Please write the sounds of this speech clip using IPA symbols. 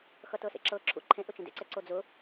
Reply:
xʌtɤsḛǁɤ ǁʰṵǃʰẽʔʊ t͡ʃẽdḛǀɛǀo d͡zʊ

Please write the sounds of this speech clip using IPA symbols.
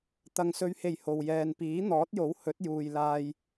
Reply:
t̪ɐ˨ŋsɵ˨˧ɥhe˨˩j ho˨w jɛː˨npiː˨˥ n̪ɔː˨˥t̚jo˨˥w hɵ˨˥t̚juː˨jlaː˧j

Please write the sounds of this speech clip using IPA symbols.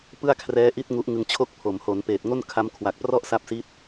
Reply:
pɯ˥˩a̯kʰrɛː˦˥ ʔi˥˩t̚ ŋu˦˥ʔŋɯ˧ŋt͡ɕʰo˥˩k̚ pʰo˩˦mho˩˦npeː˨˩t̚ ŋo˥˩n kʰa˦˥m kʰwa˨˩k̚prɔ˥˩ʔsa˦˥p̚si˦˥t̚

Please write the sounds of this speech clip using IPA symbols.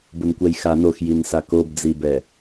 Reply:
bʊnkʷɛjxa noxjinsa kobd͡zibɛ

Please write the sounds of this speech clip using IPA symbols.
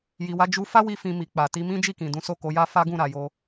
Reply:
ji˨wa˧d͡ʒu˧ fa˦wi˧ fĩ˧mi˨k͡pa˨ ti˧mĩ˦d͡ʒi˦˨kĩ˨ dũ˨˦so˦˨ko˨˦ja˦ fa˦ɡũ˦˨ɾa˨jo˧

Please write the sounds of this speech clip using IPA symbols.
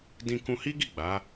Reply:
dĩ˧kũ˧hi˦ɡi˦˨ ɡ͡ba˨˦

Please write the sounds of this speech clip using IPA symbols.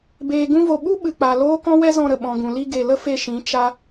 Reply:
beː˨ɡũ˧vo˨ ɓu˦ ɓɨ˨k͡pa˨loː˦kɔ̃˦ wɛ˦zɔ̃˧ɾə˨ ɓɔ̃˨ɡũ˨ li˧ɡe˨ lə˦fe˧ʃĩ˨˦ t͡ʃa˦

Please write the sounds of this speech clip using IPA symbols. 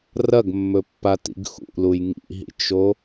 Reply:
rɐɡmːɵpːatḭɡ xṵluj ŋḭɦḭt͡ʃo

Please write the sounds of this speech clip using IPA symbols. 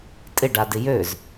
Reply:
tʼɪɖadɪ jøz

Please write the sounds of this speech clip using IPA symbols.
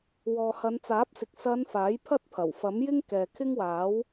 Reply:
wɔː˨hɐ˨˧nt͡saː˨˥p̚sɪ˨k̚ sɐ˨˧n faː˨˥jpʰɐ˥t̚pʰɐ˨˩w fɐ˨˥mjɪ˥ŋ kɛː˨kʰɪ˥ŋwaː˨˥w

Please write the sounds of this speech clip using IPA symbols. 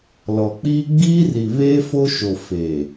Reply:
lɔ˨k͡piː˦ ɡ͡biː˦ri˨βeː˦ fo˦ʃo˨ feː˨

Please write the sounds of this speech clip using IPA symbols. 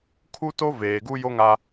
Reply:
kʰu˦to˦ veː˨ɡu˦jo˦ŋa˦

